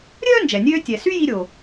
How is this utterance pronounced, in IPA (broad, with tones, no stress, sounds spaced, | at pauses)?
ɾʲ œː˥ n d͡ʒ ɛ˩ nʲ øː˧ tʲ ɛ˩ s y˥ j i˧ ɾʲ o˩